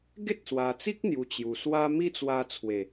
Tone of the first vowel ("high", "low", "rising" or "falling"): high